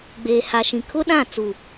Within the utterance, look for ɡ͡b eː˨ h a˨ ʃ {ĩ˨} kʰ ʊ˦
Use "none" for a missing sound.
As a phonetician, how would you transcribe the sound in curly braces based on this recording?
ĩ˨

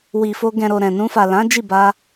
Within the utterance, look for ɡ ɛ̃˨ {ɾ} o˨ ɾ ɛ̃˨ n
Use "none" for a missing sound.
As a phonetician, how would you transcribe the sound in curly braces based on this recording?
ɾ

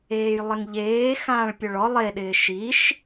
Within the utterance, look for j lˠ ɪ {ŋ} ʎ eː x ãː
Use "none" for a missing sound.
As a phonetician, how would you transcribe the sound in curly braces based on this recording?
ŋ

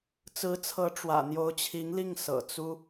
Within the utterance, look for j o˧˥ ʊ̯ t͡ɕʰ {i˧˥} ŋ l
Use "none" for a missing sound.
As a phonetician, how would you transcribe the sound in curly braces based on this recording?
i˧˥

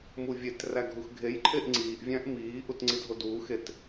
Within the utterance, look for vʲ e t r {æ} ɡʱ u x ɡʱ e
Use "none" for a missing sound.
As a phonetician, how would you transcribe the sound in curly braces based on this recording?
æ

